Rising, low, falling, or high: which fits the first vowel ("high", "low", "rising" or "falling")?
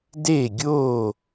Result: falling